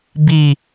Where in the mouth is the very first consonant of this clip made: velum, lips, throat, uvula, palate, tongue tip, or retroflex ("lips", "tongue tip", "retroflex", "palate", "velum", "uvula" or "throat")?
lips